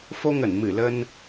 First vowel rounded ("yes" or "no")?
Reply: yes